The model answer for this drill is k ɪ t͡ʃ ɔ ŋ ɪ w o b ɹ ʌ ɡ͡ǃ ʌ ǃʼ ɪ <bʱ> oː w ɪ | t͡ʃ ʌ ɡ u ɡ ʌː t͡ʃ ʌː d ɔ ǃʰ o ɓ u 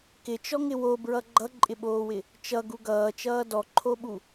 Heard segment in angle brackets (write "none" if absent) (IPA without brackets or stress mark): ɓ